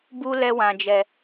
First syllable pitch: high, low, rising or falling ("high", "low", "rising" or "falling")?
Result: high